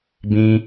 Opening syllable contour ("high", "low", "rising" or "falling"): high